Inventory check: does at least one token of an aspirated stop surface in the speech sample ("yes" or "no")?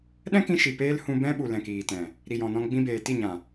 no